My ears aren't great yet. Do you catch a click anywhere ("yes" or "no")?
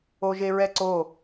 yes